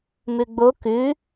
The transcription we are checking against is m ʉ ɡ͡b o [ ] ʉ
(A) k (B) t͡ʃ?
A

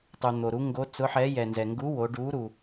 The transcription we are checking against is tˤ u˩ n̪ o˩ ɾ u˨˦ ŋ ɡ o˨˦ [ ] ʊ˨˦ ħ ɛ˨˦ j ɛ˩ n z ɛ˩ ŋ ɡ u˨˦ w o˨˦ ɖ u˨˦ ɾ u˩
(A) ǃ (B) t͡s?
B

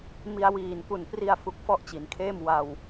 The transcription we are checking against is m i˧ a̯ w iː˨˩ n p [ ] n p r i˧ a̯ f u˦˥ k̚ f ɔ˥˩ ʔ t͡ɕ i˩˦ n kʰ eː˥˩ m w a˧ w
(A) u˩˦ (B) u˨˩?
B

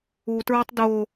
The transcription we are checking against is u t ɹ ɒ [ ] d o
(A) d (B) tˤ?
B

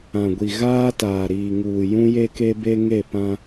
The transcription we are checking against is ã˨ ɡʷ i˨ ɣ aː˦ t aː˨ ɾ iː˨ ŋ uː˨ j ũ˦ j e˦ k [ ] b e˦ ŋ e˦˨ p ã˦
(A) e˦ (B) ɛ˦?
A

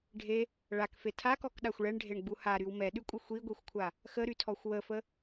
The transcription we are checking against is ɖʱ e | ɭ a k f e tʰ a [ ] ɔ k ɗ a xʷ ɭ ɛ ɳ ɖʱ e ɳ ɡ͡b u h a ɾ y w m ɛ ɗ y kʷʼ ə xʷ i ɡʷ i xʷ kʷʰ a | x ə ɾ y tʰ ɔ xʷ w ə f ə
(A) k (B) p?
A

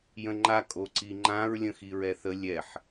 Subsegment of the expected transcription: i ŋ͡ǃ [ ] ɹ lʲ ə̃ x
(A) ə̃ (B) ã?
B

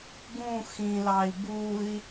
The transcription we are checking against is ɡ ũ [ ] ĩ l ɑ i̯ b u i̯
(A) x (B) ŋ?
A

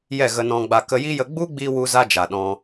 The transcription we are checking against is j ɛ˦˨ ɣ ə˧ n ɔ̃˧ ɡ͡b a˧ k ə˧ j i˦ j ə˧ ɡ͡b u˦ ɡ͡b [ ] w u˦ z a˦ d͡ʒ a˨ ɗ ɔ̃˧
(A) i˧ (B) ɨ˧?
A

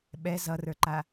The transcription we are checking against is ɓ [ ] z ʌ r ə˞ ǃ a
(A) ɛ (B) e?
A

